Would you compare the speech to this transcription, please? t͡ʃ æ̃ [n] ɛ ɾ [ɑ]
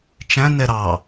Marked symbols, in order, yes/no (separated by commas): yes, yes